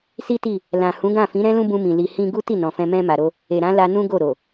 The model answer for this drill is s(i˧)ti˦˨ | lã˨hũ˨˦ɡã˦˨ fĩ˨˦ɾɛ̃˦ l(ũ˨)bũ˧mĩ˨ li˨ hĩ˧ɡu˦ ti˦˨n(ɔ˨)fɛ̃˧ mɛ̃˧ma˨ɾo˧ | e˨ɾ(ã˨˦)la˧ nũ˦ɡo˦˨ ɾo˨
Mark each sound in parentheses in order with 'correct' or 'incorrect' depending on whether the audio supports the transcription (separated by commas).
incorrect, incorrect, incorrect, correct